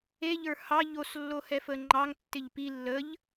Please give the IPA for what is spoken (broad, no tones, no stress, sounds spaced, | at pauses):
e ʎ ə˞ h ɑ ʎ o s lː o h ɛ f ə ŋ͡ǃ ɑ ŋ tː ɪ ʎ p i lː ə ʎ